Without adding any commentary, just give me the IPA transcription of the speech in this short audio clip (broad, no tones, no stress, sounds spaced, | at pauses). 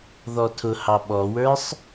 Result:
ð ɔ tʰ ʊ h ɑ ɓ ɔ w ə˞ sˤ